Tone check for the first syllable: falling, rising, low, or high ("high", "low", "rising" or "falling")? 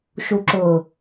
low